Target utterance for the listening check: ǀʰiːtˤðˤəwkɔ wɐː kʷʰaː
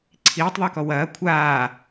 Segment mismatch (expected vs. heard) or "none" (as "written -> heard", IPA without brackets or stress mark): none